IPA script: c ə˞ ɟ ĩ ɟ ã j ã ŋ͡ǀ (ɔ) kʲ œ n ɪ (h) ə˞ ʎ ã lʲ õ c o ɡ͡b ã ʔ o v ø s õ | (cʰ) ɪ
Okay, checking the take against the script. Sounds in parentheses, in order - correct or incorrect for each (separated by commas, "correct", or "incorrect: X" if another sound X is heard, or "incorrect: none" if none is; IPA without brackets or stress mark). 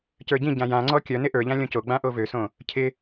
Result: correct, incorrect: ʔ, correct